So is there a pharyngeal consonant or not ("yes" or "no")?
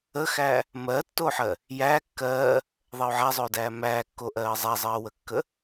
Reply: yes